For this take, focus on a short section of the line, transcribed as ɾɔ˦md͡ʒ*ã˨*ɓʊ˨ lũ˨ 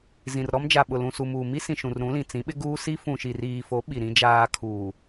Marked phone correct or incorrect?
incorrect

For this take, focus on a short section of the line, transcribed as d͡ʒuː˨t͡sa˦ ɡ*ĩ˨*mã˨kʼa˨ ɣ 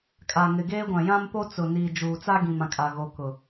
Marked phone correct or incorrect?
correct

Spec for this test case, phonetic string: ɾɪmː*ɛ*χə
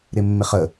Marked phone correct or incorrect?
incorrect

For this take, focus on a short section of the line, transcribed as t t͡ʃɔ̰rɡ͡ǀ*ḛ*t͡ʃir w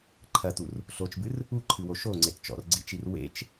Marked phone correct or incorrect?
incorrect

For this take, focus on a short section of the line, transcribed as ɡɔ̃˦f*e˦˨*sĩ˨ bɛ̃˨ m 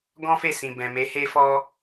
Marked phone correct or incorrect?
correct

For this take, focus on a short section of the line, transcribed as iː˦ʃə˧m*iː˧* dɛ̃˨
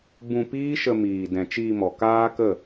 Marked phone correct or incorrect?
incorrect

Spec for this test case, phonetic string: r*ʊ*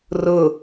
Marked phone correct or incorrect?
correct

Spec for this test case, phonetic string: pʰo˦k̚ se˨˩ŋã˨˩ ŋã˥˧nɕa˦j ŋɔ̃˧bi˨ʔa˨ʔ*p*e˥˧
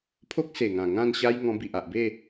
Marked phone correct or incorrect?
incorrect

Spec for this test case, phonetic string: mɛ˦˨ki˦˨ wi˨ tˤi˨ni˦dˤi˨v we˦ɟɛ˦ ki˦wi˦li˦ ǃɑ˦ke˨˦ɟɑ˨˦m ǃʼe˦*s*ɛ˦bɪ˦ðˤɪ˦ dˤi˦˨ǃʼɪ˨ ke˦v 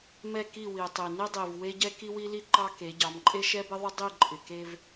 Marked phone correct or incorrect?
incorrect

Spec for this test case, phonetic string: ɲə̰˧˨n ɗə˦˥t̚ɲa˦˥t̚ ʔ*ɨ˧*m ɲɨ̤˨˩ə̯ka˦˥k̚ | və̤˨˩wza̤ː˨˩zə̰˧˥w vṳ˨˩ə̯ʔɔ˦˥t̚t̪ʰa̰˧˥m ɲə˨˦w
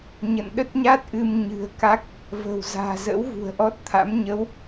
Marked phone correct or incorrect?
correct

